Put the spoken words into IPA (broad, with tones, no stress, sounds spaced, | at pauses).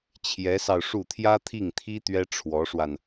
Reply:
t͡ɕʰ j ɛ˧˥ s ɑ˧ ʊ̯ ʂ u˥˩ t̪ʰ j ä˥ t̪ʰ i˥˩ ŋ t̪ʰ i˥ t̪ ɥ ɛ˥ ʈ͡ʂʰ w ɔ˧˥ ʂ w a˧ n